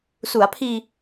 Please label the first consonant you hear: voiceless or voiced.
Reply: voiceless